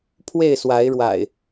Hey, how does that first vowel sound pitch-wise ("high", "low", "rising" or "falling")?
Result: falling